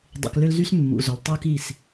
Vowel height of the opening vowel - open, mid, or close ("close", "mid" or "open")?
close